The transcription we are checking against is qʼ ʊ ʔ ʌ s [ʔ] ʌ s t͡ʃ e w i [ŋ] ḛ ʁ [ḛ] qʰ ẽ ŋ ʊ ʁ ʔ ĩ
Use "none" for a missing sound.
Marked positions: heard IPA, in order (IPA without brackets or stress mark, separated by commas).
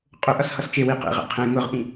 h, q, ɛ̰